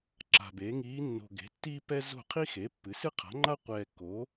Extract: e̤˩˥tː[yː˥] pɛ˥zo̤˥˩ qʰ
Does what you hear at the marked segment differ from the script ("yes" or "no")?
yes